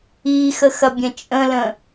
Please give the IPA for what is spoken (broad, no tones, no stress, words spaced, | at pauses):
ixəxɐbʲɐ̃ t͡ʃʼə̃lə̃